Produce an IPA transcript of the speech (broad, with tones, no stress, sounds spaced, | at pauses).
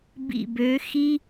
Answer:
b ḭ˧˩ b ø˨˦ x i˥